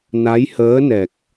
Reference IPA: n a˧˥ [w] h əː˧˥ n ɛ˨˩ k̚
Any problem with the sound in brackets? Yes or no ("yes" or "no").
yes